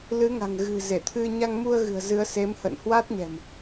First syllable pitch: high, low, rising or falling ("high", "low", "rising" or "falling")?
rising